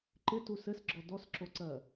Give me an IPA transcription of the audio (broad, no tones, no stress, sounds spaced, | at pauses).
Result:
ǃ ɪ t u s ɘ s ɡ͡ǁ ɔ d ɔ s ǁ o ǀ ɜ